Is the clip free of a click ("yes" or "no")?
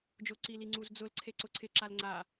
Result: no